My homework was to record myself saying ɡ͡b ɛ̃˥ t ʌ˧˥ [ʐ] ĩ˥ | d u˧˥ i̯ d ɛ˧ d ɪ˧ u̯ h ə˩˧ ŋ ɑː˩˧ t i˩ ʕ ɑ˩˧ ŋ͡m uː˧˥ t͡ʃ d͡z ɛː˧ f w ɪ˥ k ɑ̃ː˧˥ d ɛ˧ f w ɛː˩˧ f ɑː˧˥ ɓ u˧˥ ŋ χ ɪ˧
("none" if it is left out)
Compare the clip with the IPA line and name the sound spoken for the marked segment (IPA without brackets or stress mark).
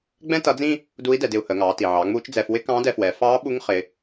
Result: d͡z